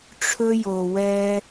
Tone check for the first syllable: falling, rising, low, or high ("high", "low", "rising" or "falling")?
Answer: high